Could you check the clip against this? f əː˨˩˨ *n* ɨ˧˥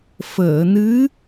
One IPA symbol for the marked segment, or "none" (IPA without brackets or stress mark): n